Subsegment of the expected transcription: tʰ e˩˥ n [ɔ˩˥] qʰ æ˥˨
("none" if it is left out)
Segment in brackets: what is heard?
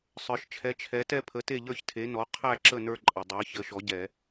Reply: ɔ˩˥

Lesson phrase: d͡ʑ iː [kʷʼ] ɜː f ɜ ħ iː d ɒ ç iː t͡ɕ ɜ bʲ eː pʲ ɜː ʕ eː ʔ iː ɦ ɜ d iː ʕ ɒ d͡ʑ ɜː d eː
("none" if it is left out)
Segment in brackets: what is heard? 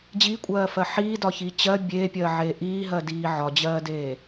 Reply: kʷʼ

